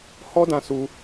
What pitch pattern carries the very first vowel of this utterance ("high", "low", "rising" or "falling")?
high